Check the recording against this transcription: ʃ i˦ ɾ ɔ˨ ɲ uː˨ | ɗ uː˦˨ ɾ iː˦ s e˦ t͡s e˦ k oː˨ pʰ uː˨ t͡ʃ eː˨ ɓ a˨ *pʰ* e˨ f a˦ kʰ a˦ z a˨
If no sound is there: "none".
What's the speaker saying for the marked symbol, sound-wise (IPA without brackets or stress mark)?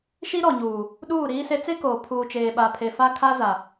pʰ